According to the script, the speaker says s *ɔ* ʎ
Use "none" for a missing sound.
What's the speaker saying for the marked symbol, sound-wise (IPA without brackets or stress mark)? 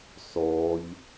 ɔ